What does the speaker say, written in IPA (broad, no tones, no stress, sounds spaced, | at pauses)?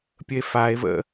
pʲ ə e̯ f a e̯ v ə̰